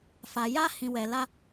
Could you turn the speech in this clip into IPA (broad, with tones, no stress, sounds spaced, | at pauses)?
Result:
f a˨ j a˦ h ĩ˨ w ɛ˨ l a˦